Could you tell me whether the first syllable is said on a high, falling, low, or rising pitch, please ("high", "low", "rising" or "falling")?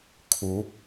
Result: rising